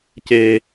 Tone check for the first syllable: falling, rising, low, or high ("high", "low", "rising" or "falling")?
high